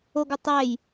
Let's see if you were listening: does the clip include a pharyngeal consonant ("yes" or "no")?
no